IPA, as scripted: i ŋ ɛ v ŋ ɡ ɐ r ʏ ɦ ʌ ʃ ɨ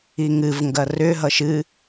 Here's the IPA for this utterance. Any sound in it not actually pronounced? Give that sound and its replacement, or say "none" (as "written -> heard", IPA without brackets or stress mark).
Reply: ɛ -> ɨ